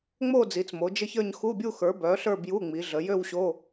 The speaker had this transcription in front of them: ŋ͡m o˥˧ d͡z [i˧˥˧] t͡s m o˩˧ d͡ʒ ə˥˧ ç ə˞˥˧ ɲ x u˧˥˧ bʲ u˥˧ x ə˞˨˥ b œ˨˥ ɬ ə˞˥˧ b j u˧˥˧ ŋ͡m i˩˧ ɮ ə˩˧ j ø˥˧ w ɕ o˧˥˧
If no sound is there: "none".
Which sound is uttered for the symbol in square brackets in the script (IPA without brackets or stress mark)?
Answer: i˩˧